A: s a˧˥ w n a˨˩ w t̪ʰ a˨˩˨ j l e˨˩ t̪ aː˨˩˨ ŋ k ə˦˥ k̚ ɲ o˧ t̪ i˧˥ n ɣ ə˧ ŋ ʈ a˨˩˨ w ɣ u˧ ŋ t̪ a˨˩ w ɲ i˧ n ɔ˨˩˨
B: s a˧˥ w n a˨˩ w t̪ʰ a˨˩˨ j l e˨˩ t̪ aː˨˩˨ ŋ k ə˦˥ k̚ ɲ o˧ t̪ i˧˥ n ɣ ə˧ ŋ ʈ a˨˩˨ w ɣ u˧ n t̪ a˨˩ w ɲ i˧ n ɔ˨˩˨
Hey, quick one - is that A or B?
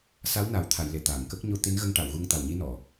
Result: A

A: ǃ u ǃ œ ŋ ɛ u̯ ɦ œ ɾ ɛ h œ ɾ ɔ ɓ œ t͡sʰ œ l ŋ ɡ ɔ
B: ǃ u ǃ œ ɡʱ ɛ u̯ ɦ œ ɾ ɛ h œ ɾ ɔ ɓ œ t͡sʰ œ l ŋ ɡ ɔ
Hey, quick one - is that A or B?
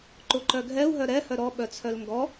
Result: B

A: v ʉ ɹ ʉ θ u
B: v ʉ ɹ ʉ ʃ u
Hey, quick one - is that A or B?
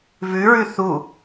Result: A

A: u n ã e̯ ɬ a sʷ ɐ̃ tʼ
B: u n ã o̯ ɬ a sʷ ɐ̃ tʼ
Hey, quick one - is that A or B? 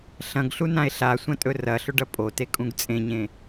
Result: A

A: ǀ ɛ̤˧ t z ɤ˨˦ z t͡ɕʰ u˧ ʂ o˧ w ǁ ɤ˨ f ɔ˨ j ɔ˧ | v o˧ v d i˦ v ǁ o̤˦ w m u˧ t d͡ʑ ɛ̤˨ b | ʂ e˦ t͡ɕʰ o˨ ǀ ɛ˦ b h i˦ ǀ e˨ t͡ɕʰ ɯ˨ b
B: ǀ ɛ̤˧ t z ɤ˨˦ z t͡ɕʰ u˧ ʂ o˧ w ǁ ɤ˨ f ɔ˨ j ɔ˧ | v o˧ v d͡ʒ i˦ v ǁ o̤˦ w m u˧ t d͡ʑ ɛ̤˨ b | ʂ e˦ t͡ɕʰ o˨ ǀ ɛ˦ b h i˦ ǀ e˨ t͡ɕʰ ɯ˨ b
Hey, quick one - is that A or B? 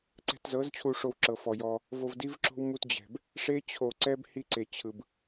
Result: A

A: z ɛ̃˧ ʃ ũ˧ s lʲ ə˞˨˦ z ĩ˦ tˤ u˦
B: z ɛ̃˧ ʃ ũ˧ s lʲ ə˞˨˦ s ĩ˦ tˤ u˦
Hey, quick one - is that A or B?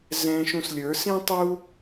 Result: B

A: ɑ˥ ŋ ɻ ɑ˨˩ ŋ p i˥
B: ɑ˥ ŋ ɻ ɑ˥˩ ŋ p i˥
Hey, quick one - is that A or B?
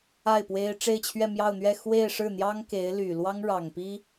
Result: A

